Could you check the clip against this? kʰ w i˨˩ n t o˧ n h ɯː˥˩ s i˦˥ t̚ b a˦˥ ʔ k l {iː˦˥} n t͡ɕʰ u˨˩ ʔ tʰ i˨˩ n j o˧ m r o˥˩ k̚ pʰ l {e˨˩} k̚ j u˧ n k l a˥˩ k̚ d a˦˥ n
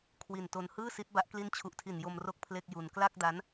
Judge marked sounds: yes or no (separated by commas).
no, no